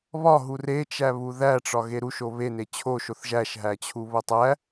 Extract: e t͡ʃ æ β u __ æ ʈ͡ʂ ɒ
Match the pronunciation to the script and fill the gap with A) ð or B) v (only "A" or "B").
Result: A